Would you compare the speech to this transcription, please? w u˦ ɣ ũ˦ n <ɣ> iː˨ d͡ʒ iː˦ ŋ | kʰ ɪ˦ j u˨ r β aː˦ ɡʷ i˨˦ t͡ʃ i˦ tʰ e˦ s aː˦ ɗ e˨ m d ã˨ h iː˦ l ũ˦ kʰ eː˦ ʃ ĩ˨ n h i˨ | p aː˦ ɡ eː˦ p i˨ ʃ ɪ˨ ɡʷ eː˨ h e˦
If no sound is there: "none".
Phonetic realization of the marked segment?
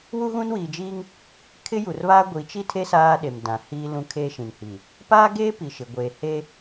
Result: w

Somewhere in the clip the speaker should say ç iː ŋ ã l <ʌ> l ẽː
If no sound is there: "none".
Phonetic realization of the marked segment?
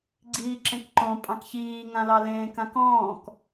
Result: ɑ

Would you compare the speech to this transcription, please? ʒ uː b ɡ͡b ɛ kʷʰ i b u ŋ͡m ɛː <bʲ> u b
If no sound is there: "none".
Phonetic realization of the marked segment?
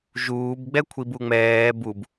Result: b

